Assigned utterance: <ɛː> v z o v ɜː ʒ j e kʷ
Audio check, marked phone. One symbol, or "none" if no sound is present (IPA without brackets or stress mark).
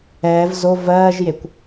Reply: ɛː